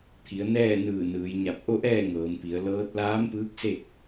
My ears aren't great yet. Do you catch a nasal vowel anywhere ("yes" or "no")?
no